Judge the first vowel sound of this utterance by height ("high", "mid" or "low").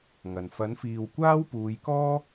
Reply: low